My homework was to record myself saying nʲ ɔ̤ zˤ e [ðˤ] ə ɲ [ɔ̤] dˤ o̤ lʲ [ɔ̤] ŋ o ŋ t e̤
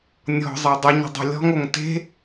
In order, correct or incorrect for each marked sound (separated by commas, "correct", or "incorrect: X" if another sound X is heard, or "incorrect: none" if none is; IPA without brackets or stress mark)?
incorrect: dˤ, incorrect: ə̤, correct